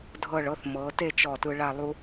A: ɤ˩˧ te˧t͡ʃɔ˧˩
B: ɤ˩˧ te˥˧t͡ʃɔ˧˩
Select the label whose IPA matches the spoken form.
B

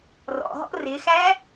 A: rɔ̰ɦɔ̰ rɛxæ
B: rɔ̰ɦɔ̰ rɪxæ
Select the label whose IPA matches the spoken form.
B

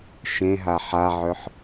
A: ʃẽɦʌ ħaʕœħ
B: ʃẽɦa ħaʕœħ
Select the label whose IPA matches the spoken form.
B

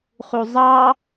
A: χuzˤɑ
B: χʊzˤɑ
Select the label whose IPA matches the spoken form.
A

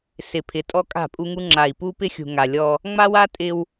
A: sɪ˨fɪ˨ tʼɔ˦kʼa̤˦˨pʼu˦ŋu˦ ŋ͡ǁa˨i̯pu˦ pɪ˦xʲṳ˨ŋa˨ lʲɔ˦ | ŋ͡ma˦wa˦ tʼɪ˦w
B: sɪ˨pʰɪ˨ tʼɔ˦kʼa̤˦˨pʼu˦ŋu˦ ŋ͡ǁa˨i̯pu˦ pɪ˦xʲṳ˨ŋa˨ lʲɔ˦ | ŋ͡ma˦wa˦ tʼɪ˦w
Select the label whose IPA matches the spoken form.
B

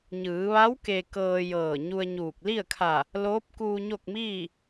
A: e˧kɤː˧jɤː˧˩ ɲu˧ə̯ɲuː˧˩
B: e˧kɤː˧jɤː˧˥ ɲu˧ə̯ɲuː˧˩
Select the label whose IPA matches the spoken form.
A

